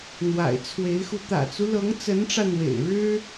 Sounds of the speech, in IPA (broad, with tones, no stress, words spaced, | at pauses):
n̪wa̰˨˩ɪ̯t͡sʰwe˧˥ɪ̯xu˧ t̪ä̰˨˩t͡su˦lɤ˧˥ŋ t͡sə˧˥nʈ͡ʂä˧n̪wḛ˨˩ɪ̯ɻɻ̩˥